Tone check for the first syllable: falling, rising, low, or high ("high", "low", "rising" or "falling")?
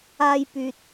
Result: high